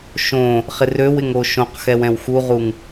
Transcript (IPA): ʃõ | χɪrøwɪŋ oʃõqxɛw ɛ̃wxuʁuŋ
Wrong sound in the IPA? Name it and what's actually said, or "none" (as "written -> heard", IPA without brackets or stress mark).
none